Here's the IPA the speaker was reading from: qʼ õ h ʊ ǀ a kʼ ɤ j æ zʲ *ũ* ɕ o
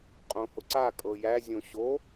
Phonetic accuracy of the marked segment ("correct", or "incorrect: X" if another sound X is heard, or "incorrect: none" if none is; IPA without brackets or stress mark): incorrect: õ